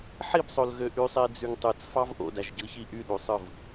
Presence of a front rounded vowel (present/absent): present